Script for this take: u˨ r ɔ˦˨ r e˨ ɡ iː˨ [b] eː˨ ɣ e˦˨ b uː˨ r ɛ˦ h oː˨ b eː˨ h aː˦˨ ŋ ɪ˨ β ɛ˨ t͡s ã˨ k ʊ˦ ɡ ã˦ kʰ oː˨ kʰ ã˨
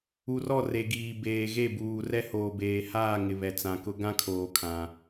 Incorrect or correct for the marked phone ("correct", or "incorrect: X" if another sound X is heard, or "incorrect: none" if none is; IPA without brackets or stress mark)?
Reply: correct